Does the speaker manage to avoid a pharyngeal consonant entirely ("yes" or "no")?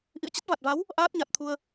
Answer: yes